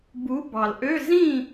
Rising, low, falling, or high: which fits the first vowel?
rising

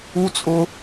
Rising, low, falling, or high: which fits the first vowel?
high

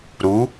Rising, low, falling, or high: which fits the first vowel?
rising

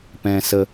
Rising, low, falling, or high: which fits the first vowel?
low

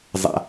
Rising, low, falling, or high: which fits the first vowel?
high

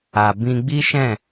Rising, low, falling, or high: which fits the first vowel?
low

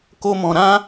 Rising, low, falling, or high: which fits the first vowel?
high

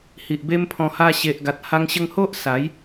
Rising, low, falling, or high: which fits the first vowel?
low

